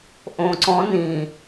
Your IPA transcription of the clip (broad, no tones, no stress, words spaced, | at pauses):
ʔõǀɔ̃ nĩ